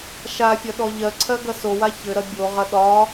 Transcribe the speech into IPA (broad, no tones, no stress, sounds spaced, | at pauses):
ʃ a fʲ ɐ ɗ ɔ ʎ ɜ ǀʰ ɜ ɡ ɐ s o w a ç ɘ ɾ ɐ bʲ o ʁ ɐ ɗ ɒ